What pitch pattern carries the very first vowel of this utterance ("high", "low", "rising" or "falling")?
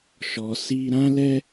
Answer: low